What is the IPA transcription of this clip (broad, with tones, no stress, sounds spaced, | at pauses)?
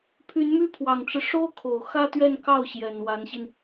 pʰ y˧˥ n m y˥ pʰ w ɑ˨˩ ŋ ʈ͡ʂ ɻ̩˦ ʂ o˥ ʊ̯ kʰ o˨˩ ʊ̯ x ä˥ t̪ ɥ ɛ˥˧ n k ɑ˥˩ ʊ̯ ɕ j ɛ˨˩ n w a˧˥ n ɕ i˧ n